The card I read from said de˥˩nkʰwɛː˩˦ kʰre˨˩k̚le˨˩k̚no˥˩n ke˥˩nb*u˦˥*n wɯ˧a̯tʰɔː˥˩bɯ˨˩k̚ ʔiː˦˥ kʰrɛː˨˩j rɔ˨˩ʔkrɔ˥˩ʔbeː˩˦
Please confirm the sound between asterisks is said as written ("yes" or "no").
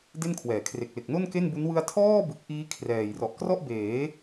yes